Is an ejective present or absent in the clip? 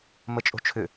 present